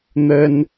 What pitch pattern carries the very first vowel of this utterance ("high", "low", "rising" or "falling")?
high